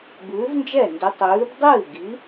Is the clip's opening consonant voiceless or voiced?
voiced